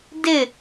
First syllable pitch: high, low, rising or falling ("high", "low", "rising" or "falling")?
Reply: falling